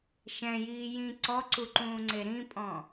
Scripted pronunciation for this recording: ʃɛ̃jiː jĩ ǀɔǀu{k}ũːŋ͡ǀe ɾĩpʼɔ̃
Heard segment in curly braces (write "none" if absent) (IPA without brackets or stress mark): ǃ